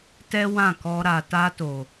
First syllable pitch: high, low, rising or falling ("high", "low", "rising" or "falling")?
high